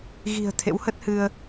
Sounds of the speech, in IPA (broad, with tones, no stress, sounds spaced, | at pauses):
ɣ i̤˨˩ ə̯ t̪ʰ ḛ˧˥ w h ə˦˥ t̚ h ɨ˧ ə̯